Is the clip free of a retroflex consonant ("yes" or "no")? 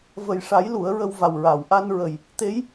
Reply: no